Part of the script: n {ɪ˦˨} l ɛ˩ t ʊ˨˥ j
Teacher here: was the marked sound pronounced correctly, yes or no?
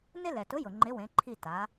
no